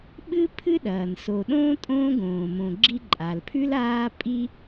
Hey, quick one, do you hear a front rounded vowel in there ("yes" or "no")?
no